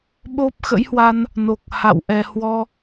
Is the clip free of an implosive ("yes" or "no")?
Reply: no